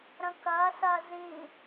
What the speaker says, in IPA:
ɾ ə̃ k ɐː s ɐː z ĩ

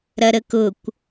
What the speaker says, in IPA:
ɾ ɐ ɾ ə k ʊ kʷ

